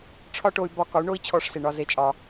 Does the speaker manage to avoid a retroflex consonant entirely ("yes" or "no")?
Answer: no